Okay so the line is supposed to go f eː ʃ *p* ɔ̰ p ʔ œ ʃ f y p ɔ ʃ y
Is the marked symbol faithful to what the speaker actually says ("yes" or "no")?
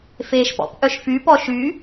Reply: yes